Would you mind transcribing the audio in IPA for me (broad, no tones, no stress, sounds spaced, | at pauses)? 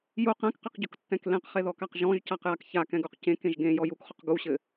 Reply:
j u q ɛ̃ k q ɨ q ɟ o k tː ɛ̃ k l ẽ q χ e ð ɔ k a q ʒ ɔ̃ ʒ c a q j a k ç a k ɛ̃ ɡ u q c ẽ k ẽ ʒ ɡ ẽ j ɔ j u k χ o q ɡ u ɕ ɘ